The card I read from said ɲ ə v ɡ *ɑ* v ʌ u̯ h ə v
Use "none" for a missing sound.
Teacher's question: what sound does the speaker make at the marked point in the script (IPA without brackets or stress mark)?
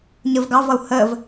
ɑ